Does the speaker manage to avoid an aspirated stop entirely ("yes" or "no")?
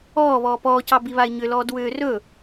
yes